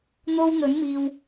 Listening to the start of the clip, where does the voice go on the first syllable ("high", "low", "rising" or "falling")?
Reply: high